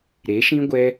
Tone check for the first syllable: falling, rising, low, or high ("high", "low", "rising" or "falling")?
rising